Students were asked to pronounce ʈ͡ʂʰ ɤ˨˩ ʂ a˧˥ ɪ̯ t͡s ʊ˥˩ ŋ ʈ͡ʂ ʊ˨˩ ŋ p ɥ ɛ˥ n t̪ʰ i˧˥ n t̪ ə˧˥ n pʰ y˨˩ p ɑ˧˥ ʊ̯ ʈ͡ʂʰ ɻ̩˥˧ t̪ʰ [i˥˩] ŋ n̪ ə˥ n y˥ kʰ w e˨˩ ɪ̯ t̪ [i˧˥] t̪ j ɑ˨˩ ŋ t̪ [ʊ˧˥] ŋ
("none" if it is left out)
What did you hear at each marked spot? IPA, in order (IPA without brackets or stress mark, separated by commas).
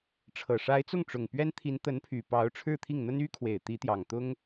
i˥˩, i˧˥, ʊ˥